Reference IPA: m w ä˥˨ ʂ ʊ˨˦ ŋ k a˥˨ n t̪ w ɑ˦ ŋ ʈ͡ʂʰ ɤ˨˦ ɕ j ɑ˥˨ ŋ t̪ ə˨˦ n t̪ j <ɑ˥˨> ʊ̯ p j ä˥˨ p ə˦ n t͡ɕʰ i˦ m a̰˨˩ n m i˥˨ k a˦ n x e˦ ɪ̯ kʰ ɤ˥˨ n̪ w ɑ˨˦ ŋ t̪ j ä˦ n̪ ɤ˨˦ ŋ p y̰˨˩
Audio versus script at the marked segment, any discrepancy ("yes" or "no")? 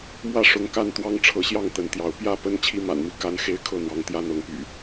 yes